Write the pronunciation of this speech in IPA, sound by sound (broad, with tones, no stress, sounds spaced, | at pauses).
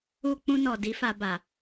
u˧ k͡p ũ˧ n ɔ˨ d i˨˦ f a˧ b a˨